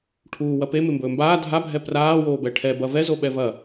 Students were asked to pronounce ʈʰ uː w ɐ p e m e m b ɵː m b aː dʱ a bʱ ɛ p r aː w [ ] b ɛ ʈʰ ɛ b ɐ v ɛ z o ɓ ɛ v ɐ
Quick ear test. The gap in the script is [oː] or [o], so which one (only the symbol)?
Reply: oː